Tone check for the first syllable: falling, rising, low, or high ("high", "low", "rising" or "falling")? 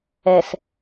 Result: low